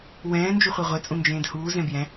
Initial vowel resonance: nasal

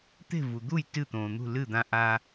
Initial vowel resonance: oral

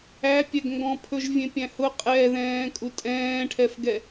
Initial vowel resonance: oral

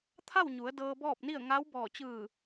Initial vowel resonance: oral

